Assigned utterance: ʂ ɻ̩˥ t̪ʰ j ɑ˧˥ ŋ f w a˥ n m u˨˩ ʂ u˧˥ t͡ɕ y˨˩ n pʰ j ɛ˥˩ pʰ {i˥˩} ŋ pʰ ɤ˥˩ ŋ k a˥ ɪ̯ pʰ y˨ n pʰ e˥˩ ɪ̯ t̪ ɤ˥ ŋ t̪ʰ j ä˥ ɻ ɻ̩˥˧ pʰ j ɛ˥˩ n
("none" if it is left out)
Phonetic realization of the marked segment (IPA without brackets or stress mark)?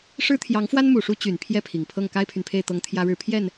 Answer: i˨˩